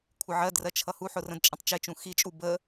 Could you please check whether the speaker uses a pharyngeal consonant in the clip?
yes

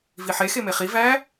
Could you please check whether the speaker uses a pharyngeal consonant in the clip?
yes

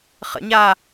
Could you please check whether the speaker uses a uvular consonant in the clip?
yes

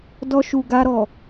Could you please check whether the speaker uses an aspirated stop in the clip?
no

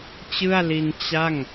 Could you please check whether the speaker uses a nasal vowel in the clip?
no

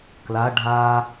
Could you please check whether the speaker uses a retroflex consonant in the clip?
yes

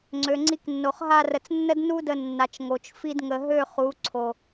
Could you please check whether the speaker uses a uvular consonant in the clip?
yes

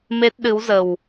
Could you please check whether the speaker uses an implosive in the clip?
yes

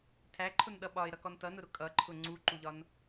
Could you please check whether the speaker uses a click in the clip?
yes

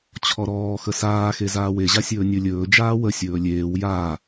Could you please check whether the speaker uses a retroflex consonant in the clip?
no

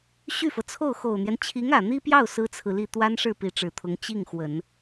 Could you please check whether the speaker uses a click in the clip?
no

